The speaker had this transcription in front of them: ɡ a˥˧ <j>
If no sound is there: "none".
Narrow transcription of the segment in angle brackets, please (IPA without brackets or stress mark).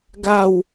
w